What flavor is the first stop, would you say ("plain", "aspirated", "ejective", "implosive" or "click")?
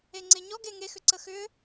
click